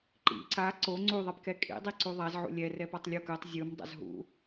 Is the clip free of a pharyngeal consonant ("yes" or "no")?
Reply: no